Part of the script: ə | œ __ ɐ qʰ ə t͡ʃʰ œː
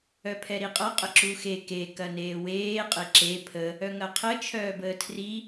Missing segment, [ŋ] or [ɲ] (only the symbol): ŋ